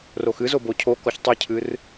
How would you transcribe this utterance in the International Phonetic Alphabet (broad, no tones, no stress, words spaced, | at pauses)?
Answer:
roxɨzo bocʰo kɔçtˤɨcʰɨr